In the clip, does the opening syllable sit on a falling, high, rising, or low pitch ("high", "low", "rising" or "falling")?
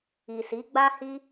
low